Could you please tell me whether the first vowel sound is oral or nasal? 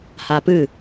oral